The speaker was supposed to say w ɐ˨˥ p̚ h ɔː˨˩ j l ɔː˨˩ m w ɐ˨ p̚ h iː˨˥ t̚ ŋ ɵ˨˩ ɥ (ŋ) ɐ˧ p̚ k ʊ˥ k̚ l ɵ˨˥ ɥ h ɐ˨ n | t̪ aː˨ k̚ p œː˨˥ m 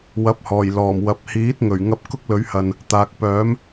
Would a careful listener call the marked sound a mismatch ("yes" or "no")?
no